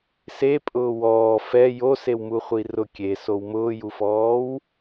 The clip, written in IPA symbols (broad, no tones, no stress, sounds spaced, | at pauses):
s e pʼ ʊː w ɔː f ɛ j o s e w m u χʷ i r ʊ kʲ e s o w m ʊː j u f ɔː w